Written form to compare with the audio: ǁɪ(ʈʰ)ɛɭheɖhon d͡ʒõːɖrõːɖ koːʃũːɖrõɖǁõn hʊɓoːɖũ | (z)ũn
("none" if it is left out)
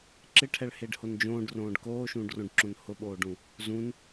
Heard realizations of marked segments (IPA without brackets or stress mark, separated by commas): ʈʰ, z